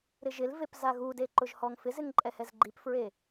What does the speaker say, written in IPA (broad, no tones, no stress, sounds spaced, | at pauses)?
ɾ ɪ ʒ ɪ l v e p z a ɣ u d e ǃ ʊ ʒ h ɔ ŋ f ɪ z ɪ ŋ ǃʼ ɛ h ɛ z ɡ͡ǃ i p f ɹ e